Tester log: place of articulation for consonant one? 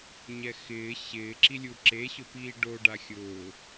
palatal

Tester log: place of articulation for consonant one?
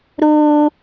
alveolar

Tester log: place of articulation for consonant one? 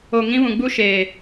velar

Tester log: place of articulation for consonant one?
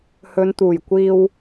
glottal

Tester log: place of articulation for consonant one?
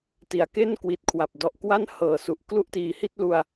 alveolar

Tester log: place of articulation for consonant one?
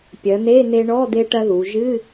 labial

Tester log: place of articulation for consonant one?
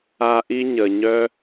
glottal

